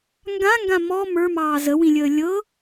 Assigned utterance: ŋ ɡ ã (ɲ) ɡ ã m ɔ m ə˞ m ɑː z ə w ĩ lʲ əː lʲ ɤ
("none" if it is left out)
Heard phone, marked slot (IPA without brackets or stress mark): ŋ